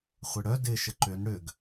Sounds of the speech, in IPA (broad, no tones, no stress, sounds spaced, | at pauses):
χʷ ɪ ɽ œ d ɪ ʃ ə ǃ ʏ n ɽ ʏ ɡ